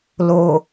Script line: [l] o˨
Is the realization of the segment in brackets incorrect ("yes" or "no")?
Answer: no